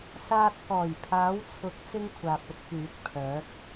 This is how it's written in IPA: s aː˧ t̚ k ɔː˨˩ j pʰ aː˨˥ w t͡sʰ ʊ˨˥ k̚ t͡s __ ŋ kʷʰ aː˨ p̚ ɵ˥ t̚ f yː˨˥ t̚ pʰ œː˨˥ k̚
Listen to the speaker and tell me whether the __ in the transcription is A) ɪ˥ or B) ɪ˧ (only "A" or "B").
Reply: A